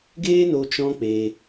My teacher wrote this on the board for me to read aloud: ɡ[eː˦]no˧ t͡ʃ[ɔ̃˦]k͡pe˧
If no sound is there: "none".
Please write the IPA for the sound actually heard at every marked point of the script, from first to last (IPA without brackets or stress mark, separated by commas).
eː˦, ɔ̃˦